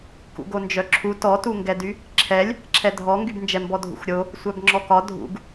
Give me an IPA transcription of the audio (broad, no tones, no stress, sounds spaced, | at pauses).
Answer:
k ṵ ɡ o n d͡ʒ œ ǁʰ u t ɔ t u ŋ ɡ ɛ d y | ǁʰ ɛ lʲ | ǁʰ ɛ dʱ ɔ ŋ ɡ y b n d͡ʒ ɛ m b ɔ dʱ ṵ x ɾʲ o | sʷ œ b ŋ͡ǁ ɔ k ɒ dʱ ṵ ɡ